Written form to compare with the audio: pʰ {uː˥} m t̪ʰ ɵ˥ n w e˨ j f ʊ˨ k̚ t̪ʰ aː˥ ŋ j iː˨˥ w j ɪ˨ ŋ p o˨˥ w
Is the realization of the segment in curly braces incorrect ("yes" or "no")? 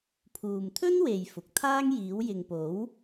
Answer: yes